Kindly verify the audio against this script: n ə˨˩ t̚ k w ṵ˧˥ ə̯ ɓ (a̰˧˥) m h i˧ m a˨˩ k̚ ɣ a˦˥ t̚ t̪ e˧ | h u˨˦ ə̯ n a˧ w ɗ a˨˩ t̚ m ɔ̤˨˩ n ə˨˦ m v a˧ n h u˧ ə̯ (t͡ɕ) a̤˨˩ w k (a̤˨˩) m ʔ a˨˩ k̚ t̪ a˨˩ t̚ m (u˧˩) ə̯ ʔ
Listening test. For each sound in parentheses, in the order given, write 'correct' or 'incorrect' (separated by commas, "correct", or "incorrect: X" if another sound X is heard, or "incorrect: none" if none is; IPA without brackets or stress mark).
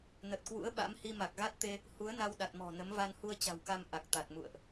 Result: correct, correct, incorrect: a˧, incorrect: ṵ˧˨